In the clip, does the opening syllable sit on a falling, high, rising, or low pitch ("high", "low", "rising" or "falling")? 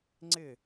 falling